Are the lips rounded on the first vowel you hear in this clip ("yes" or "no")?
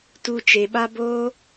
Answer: yes